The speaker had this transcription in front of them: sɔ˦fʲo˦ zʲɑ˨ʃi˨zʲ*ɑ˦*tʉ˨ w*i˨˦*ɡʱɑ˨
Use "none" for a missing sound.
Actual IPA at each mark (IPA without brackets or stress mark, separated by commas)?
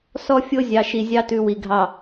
ɑ˦, i˨